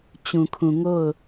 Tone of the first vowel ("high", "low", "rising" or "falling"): low